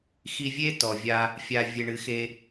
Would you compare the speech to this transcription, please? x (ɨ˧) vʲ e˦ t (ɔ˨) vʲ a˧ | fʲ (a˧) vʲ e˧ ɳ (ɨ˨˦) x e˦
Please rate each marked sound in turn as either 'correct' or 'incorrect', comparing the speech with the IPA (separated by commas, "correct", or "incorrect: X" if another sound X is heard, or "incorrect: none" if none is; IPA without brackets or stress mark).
incorrect: i˧, correct, correct, correct